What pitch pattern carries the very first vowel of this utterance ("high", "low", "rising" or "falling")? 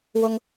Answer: high